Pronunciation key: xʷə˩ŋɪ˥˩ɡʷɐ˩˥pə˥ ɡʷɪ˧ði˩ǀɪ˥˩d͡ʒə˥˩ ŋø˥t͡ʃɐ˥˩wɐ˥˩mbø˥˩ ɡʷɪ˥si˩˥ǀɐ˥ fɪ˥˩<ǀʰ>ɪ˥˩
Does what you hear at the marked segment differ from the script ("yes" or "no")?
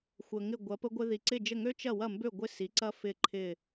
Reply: yes